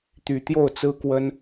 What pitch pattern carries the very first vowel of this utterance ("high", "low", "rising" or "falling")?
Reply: low